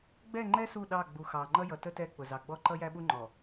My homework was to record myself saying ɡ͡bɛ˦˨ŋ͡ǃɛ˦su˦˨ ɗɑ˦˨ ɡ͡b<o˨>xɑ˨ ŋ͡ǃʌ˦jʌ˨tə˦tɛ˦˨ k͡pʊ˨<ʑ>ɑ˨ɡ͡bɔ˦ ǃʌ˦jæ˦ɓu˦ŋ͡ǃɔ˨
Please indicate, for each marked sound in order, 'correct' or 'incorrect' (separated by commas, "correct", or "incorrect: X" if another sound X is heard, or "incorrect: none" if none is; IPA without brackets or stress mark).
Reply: incorrect: u˨, incorrect: z